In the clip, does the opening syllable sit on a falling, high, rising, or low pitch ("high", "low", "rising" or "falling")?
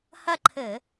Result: falling